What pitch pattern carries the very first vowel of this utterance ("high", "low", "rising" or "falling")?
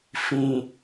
low